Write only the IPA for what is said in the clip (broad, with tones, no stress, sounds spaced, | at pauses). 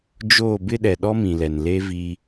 d͡ʒ oː˦˨ b ɪ˦ ɗ ɛ˨ ɗ ɔ˦ m ĩ˨ l ɛ˨ n l e˦ v iː˦